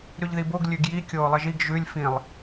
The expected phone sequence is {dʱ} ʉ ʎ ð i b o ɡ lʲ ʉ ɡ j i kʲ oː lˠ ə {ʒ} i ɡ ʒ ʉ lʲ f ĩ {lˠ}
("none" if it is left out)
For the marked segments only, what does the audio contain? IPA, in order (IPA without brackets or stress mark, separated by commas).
ɾ, ʒ, lˠ